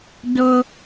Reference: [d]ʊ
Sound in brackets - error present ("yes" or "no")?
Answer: no